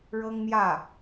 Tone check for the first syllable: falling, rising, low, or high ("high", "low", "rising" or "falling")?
high